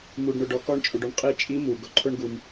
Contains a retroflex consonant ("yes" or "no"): yes